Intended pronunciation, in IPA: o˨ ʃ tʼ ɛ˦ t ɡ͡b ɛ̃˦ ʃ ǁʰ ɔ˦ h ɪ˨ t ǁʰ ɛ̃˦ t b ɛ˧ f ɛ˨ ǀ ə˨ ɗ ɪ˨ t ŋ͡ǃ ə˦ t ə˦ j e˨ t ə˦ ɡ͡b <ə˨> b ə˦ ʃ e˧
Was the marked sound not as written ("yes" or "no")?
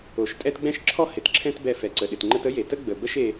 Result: no